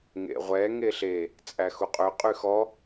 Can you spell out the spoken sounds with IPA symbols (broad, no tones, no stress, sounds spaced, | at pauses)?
ŋ ḛ ʁʷ ɛ ŋ e ɬ e | t͡sʼ æ x u qʼ ø qʼ y x ɔ